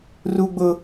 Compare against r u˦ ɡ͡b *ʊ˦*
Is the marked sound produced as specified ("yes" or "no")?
yes